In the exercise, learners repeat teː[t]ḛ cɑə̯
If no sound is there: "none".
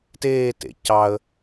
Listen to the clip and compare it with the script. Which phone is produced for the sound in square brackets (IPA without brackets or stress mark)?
t